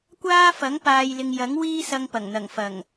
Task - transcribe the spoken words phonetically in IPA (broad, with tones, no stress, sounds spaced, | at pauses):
kʷ aː˥ f ɐ˨˥ ŋ p aː˨ j l ɪ˨ ŋ j ɐ˨˥ ŋ w iː˥ s ɐ˧ ŋ p ɐ˨˩ ŋ n̪ ɐ˨˩ ŋ f ɐ˨˩ ŋ